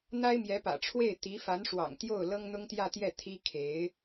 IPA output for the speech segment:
n̪ a˥ ɪ̯ m j ɛ˧˥ p ä̰˨˩ ʈ͡ʂʰ w e˥˩ ɪ̯ t̪ i˧˥ f a˧˥ n ʂ w ɑ̰˨˩ ŋ t̪ j o˥˩ ʊ̯ l ɤ˥ ŋ n̪ ʊ˥ ŋ t̪ j ä˥˧ t̪ j ɛ˥˩ t̪ʰ i˥ kʰ e˧˥ ɪ̯

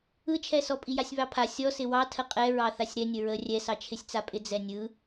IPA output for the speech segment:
ɯ t͡ʃʰ ɛ s ɔ pʼ i j a sʲ β ɑ pʰ a sʲ ɔ s ɪ w ɑ tʰ ə qʼ ɛ ɹ ɑ θ a sʲ ɾ ɛ nʲ ə ɹ ə rʲ ɛ s ɑ t͡ʃʰ ɪ sʲ t͡s a pʼ ɪ d͡z ɛ nʲ ɯ

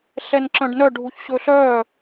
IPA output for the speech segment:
ɬ ɛ n ǁ œ̃ ɖ n œ ɖʱ u ç ɕ ɵ ɬ œː

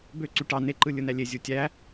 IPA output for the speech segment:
b ø ǀ y ʈ ɑ n e ǃ ɯ lʲ ɯ n æ lʲ e zʲ u tʲ æ

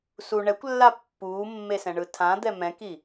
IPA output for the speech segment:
s u ɳ ɛ kʷ lː a pː uː mː e s ɛ̃ ɳ ɯ tʰ ã d̪ ɛ m ɛ̃ k i

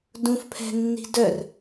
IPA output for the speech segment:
d ũ f pʰ ɛ̤ nː i̤ d œ r

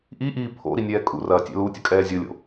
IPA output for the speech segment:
ʔ i ʔ iː pʰ o̰ ɾ i nʲ ɛː kʼ ṵ r ɐː tʲ ɛ̰ l u tʲ ɐ kʼ ɛː zʲ o lʲ o̰

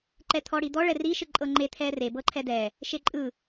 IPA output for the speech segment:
ǃ ɛ t̪ʰ ɔ ɽ i d̪ ɔ ɭ ɛ r i ʃ ɯ ǃʼ ɤ ŋ͡ǃ e t̪ʰ ɛ r e b ɤ ǃʰ ɛ d ɛ | ʃ e ǃʼ ɯ

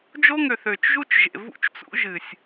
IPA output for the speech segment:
d͡ʒ o˦ ŋ ø˨ θ ø˨ t͡ʃ ʒ u˦ t͡ʃ ʒ ḛ˨ v ṵ˦ t͡ʃ t͡s ṵ˦ ʒ ɨ˨ sʲ

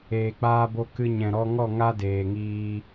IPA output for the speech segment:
eː˨ k͡p aː˧ b o˧ k ɨ˧ ɲ ɛ̃˨ ɾ ɔ˧ ŋ ɔ˦˨ ŋ a˦ d eː˨ ŋ iː˧

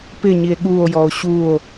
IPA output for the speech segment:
p ɪ ɲ i e̯ ɠ u o̯ j ɔ o̯ ɕ u o̯

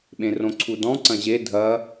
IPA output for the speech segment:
ɓ ẽ r õ ǀʰ u d ɔ̃ ǀ ɐ̃ ʑ e dʱ ɐ

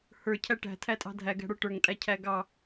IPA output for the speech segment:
h ə˞ cʰ æ ʈ æ̤ tʰ æ tʼ ɑ̤ dʱ æ ɡ æ̤ ɽ ə˞ ʈ ə˞ ŋ tʼ æ cʰ æ ɡ ɑ

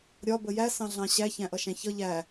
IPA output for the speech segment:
ɾʲ ɒ b ə j æ s ɑ̃ ɮ ɑ̃ ɕ æ ç æ̃ ʔ ʌ ʃ æ̃ ç ʌ ʎ æ

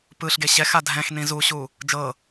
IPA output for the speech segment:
p ɯ ɬ ɡ e ɕ ɛ x a dʱ ɛ̃ x n ĩ z u ɕ u | d͡ʒ ɤ

